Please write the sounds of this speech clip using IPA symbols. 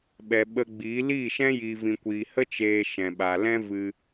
ɓ ɛ˨ ɓ ə˧ ɡ͡b iː˨˦ l iː˦˨ ʃ ɛ̃˦ j iː˨ v ĩ˨ kʷ iː˨ h ə˦ t͡ʃ eː˧ ʃ ɛ̃˨ ɓ a˨ l ɛ̃˦ v ɨ˧

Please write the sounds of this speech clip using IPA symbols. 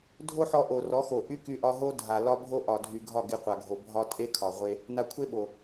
dʱ o˦ ħ ɔ˧ ʔ o˨ r ɔ˨˦ x o˨ ʔ y˦ k y˧ ʔ ɒ˧ ɦ o˦ dʱ a˨ l ɒ˦ bʱ o˦ ʔ ɒ˨ dʱ y˨ ɡʱ ɒ˦˨ ɡ e˧ qʷ a˨ ɡʱ o˨ bʱ ɒ˦ tʼ e˦ kʰ ɒ˨ ʁʷ e˧ | n a˧ kʷʰ e˦ ɓ o˨

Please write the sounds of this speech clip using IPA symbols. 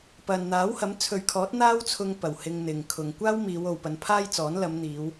p ɐ˨ n n̪ aː˨˥ w h ɐ˨˥ m t͡sʰ ɵ˨ ɥ kʰ ɔː˨˥ t̚ n̪ aː˥ w t͡sʰ ʊ˧ ŋ p ɐ˨˩ w h ɪ˧ ŋ n̪ ɪ˨ ŋ kʰ ʊ˨ ŋ kʷ aː˥ w m iː˨˧ w o˨ w p ɐ˨˧ n pʰ aː˥ j t͡s ɔː˨˥ n l ɐ˨˧ m n̪ iː˨˧ w

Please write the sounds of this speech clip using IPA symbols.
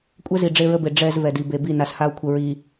kʷʼ ɛ˦ z i˨ ɖ͡ʐ e˦ ɹ ə˦ b e˨ ɖ͡ʐ ɛ˨ z v ɛ˨ d i˨ b e˨ b i˦˨ n a˨ s h a˦ o̯ kʷʰ ə˨ ɹ i˨

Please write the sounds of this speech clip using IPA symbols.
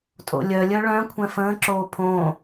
tʼ o̰ lʲ œ lʲ œ ɭ œ̃ kʷʰ ɛ̃ f ə̃ː ǁ oː pʰ õ

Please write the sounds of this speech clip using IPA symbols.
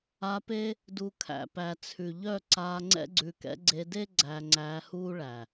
a˧ p e˦ | d u˨ kʰ æ̰˨ p æ˨ t͡sʰ ʉ˨ ʎ œ˦˨ ǀ aː˧ ŋ͡ǀ ɛ̰˦ ɡ͡ǀ ʉ˧ k ɛ̰˦ ɡ͡ǀ e˧ d e˦ ɡ͡ǀ æ˧ ŋ͡ǀ æː˧ h uː˦ ɭ æ˨

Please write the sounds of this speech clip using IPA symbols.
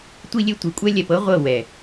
tʷ i˦ lʲ e˦ tʷ i˨ kʷʼ ɛ˦ lʲ ɛ˨ p ɤ˦ ʁʷ ɤ˦˨ w ɛ˨

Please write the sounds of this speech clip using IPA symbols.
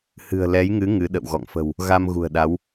h ɨ̤˨˩ ə̯ l ɛ˨˦ j ŋ ɨ˨˦ ŋ ɨ˨˦ ɗ ə̰˧˨ w ɣ ɔ̰˧˨ ŋ f ə̤˨˩ w | ɣ a˧ m ɣ ṳ˨˩ ə̯ ɗ a˨˦ w

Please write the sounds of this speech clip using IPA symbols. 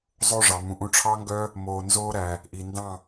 zˤ o˦ ʐ ɑ˨ m ũ˨ ʔ ũ˧ ʈ͡ʂʰ ɑ˦ ŋ ɡ œ˦ | m oː˨ n z oː˧ ɾ æ˨ | ʔ i˨ n d ɑ̃˦˨

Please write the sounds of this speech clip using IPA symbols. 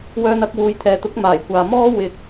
w œː˧ n ɐ˧ k̚ w uː˨˧ j t̪ʰ ɛː˨ t̪ ʊ˨˥ k̚ m aː˨˩ j kʷ aː˨ m ɔː˥ w ɪ˧ k̚

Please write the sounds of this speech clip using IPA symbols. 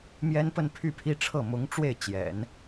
m j ɛ˥ n p ə˥˧ n pʰ y˥˩ pʰ i˥ ʈ͡ʂʰ ɤ˥˩ m ʊ˧˥ ŋ ʈ͡ʂ w e˥˩ ɪ̯ t͡ɕ j ɛ̰˨˩˦ n

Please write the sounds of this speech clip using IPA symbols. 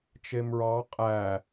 t͡ʃ e m ɹ ɑ qʼ æ

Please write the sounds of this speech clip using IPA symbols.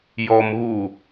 j ɔ m ɣ u

